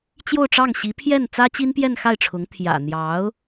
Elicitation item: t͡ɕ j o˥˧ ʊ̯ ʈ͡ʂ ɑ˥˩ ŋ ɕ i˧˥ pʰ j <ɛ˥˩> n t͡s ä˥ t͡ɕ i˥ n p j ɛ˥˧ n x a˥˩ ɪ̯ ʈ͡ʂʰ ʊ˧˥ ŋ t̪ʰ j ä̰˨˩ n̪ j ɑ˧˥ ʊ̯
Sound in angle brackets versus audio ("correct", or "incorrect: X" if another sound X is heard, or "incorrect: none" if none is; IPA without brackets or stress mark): correct